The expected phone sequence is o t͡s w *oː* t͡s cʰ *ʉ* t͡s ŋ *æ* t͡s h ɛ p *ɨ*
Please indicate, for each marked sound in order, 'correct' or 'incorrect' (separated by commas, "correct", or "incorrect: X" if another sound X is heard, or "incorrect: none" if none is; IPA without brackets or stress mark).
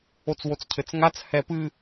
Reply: incorrect: o, incorrect: ɘ, incorrect: a, correct